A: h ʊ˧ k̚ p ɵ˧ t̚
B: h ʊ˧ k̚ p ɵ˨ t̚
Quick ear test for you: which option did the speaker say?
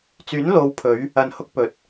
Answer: B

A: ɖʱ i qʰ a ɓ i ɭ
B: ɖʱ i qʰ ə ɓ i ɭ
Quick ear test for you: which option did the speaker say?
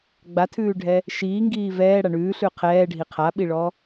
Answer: A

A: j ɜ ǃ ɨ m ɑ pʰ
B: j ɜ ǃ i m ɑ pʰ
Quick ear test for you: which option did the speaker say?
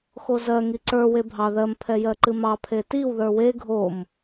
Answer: A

